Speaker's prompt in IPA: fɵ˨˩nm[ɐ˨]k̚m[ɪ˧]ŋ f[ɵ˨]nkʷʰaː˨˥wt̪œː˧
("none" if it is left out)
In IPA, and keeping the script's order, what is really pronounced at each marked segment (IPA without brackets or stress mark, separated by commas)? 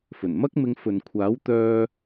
ɐ˥, ɪ˧, ɵ˨